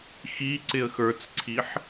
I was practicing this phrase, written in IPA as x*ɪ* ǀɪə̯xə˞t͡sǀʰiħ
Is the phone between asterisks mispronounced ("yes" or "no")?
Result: yes